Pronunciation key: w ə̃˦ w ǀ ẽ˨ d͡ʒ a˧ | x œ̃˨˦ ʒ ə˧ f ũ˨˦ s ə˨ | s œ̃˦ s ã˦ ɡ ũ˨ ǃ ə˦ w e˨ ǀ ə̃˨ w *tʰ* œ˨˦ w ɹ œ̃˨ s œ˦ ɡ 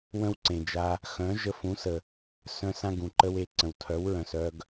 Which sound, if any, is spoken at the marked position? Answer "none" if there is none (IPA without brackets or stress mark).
tʰ